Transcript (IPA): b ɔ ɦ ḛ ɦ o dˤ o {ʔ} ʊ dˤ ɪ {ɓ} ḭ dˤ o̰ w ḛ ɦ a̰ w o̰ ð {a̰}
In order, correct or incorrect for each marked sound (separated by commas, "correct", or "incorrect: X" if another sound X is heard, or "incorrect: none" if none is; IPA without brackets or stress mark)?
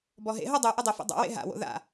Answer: correct, incorrect: f, correct